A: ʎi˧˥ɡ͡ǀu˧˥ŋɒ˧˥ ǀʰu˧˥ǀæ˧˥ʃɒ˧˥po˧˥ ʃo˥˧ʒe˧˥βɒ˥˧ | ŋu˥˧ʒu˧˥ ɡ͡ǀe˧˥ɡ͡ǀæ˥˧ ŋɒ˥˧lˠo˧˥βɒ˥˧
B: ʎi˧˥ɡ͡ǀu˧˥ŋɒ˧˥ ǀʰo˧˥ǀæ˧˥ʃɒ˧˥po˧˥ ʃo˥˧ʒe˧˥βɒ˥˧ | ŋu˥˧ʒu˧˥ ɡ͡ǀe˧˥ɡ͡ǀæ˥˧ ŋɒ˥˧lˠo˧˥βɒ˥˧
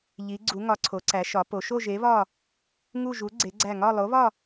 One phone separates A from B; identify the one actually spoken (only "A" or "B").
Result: B